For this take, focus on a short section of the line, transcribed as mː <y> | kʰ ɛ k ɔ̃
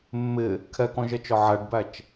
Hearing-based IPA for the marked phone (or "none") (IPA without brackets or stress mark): ɪ